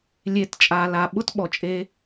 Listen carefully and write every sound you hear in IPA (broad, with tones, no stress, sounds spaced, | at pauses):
lʲ e˨˦ t t͡ʃʼ aː˨ l a˨ ɓ ʊ˦ t ɓ ɔ˨ t͡ʃʼ e˧